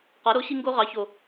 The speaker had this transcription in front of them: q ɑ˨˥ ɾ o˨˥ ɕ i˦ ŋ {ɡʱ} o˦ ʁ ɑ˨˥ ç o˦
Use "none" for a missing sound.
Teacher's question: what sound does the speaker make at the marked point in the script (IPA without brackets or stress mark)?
ɡ